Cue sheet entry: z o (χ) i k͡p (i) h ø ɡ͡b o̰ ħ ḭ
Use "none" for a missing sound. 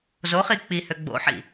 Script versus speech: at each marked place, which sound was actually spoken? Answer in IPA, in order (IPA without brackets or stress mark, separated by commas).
χ, i